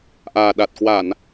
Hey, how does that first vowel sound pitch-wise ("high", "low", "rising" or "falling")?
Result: low